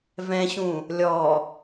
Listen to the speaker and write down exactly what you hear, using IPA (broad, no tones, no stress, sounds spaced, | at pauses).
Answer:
v ɛ̃ ɕ ũ | lʲ ɔ